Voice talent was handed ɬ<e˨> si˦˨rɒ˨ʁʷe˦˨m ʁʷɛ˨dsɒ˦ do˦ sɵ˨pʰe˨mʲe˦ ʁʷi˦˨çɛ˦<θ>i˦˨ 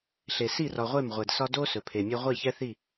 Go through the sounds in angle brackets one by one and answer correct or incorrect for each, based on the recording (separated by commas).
correct, correct